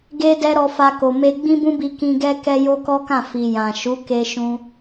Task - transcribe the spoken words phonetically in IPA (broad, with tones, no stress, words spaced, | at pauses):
ɡe˧ dɛ˧ ɾɔ˧fa˧ko˨ me˧ ɡ͡bĩ˦bũ˦bi˧ kĩ˧ɡɛ˦ kɛ˦jo˦kɔ˦kã˦˨ fi˨ jã˨ ʃu˨˦ke˧ʃũ˧